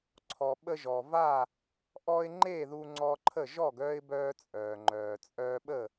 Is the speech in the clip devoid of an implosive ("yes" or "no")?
no